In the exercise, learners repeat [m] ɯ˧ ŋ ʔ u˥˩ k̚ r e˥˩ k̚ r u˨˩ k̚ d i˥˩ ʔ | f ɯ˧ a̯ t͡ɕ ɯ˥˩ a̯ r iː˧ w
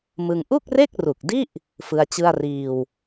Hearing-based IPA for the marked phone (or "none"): m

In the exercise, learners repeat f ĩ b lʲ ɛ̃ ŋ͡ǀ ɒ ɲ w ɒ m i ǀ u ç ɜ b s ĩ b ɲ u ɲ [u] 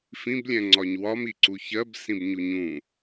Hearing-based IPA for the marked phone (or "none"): ũ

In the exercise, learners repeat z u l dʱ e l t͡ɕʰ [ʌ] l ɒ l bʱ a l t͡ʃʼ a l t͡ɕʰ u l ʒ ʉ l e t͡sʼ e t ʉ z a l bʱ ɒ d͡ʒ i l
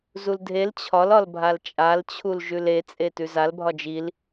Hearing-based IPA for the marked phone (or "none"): ɒ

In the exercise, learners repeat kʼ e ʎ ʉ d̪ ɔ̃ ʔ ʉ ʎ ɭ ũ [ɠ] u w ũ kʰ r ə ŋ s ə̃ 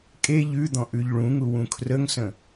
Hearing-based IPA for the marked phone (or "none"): ŋ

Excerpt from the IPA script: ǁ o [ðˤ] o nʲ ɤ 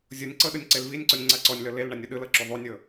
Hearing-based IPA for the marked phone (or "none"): ðˤ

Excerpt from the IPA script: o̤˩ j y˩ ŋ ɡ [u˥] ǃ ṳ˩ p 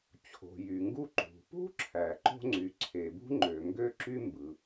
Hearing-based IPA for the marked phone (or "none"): u˥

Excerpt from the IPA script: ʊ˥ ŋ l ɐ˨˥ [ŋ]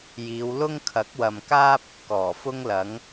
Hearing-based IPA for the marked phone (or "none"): ŋ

